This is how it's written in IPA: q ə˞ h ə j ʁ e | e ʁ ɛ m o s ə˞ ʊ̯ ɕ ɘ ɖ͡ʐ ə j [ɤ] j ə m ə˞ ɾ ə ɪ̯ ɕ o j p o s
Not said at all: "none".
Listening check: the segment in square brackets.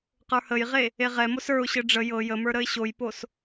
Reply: ɤ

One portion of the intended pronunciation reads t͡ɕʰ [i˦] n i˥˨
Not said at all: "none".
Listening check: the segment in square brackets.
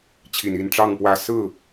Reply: i˨˩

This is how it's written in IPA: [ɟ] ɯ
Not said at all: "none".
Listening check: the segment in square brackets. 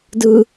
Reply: d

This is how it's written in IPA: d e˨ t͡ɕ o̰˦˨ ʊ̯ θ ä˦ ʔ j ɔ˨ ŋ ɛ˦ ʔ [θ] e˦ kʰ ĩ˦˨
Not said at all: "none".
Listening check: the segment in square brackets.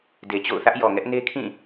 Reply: n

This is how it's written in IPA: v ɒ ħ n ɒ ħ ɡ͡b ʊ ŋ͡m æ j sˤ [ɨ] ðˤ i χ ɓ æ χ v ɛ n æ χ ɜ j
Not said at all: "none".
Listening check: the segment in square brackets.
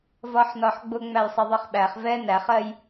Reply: i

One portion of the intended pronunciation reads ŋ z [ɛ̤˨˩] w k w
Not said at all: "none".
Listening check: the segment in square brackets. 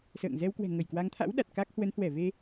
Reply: ɛ˧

